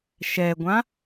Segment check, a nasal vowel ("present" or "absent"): present